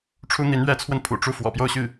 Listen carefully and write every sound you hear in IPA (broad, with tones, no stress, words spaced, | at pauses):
ʈ͡ʂʰu˥n̪i˧˥n ɥɛ˧˥t͡sʰwə˧n pʰṵ˨˩ ʈ͡ʂu˥˩ fwɔ̰˨˩pjo˥˧ʊ̯ɕy˥˩